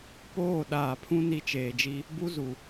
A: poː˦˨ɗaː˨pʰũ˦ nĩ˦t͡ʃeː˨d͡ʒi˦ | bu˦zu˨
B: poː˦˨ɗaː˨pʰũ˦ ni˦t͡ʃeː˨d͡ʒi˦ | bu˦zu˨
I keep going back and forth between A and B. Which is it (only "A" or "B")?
B